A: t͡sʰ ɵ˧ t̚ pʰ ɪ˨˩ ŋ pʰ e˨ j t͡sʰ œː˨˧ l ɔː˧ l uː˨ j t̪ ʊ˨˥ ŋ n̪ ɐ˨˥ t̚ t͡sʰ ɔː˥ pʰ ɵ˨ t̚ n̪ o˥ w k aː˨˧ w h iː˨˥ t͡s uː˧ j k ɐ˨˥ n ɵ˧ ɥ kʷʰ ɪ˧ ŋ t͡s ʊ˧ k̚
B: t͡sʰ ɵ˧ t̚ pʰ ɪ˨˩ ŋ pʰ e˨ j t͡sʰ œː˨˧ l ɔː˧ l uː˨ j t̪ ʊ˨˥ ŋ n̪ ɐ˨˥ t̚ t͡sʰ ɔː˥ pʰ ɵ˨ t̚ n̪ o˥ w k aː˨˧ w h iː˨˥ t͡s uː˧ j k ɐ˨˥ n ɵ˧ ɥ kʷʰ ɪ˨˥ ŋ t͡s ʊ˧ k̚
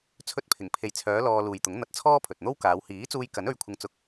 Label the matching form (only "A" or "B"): A